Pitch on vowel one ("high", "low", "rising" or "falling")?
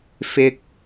high